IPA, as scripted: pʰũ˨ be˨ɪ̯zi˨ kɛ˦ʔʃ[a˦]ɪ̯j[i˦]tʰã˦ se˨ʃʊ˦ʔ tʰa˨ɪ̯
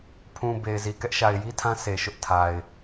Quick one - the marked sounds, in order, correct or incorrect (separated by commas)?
incorrect, correct